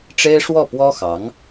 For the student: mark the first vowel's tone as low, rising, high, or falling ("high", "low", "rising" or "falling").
high